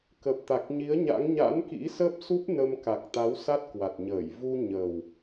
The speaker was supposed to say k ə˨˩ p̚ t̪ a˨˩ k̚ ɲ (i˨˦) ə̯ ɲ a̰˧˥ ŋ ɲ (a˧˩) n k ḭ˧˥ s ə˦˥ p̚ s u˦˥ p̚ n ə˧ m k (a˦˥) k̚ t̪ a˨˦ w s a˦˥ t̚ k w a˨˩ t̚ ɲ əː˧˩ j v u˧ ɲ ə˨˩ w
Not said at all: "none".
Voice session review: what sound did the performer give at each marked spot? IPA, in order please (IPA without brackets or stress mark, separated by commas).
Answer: i˨˦, a̰˧˥, a˨˩